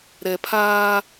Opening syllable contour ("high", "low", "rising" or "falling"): low